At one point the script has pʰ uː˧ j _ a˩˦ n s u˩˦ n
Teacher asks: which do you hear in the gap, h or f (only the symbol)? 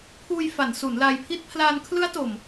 f